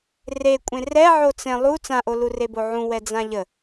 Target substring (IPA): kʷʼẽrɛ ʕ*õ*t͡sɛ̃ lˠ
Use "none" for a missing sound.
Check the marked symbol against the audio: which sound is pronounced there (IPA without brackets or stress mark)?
o